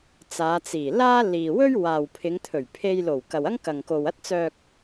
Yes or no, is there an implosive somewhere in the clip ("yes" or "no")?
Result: no